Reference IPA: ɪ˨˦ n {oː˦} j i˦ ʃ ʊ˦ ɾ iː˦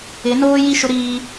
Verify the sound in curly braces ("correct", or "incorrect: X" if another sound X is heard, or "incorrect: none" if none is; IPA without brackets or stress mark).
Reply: correct